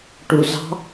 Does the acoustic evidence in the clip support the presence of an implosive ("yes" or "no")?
no